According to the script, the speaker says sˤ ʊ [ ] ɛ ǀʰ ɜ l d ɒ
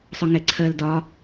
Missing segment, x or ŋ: ŋ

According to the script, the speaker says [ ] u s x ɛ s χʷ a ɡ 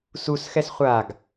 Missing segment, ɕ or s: s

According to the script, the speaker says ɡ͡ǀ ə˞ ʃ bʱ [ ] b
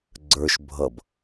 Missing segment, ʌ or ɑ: ʌ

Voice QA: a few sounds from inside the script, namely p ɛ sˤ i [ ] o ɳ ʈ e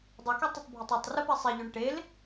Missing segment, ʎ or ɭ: ʎ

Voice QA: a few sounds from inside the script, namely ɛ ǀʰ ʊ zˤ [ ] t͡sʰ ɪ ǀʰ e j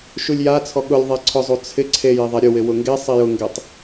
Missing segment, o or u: u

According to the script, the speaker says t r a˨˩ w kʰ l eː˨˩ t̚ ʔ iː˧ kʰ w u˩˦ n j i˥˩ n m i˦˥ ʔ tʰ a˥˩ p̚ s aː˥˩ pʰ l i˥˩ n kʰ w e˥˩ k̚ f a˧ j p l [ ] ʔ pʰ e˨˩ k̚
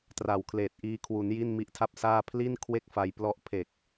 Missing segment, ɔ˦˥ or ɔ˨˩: ɔ˦˥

